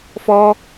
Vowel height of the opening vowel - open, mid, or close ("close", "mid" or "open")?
mid